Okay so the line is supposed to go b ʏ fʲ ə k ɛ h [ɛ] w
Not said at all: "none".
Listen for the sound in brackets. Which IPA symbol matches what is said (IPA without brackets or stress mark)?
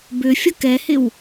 ɪ